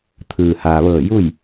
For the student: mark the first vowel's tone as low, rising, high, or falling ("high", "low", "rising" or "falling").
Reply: low